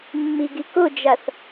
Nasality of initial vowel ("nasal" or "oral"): oral